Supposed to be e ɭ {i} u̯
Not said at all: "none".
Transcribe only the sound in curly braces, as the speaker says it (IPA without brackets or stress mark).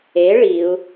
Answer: i